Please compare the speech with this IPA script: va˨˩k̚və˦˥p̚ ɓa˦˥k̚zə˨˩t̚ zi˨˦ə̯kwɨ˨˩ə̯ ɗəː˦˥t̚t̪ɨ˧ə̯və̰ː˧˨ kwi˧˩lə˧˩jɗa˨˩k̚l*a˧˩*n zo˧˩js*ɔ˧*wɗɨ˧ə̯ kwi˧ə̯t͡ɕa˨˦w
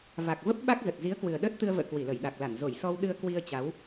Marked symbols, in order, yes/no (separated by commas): yes, yes